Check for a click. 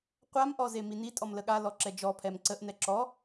present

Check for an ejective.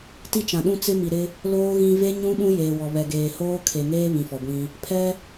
absent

